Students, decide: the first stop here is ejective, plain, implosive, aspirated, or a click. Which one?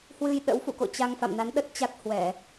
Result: implosive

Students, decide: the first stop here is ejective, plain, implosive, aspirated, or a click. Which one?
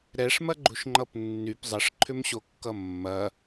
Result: click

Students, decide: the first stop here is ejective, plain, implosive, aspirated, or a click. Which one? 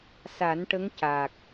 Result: plain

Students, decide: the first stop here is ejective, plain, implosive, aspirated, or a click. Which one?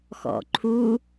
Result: click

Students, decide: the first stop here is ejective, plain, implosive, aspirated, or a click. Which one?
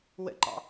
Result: click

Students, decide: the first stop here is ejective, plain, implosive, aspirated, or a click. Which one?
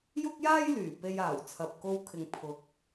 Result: plain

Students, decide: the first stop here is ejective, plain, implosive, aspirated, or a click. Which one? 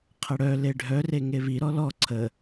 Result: aspirated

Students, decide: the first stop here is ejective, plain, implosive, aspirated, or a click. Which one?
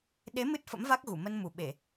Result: implosive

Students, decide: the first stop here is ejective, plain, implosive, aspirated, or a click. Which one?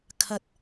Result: aspirated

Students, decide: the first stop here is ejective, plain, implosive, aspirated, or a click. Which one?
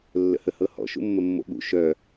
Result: implosive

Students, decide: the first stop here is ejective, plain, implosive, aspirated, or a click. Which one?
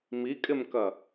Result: ejective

